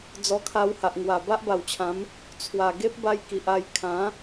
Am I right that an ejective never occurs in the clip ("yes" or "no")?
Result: yes